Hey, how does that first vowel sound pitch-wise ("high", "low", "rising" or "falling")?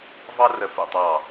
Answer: high